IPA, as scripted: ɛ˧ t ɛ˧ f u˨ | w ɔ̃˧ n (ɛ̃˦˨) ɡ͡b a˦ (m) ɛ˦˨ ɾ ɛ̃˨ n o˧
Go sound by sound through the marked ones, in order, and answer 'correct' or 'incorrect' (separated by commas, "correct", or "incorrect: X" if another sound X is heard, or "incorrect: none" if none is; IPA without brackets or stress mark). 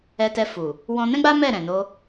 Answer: incorrect: ɛ̃˦, correct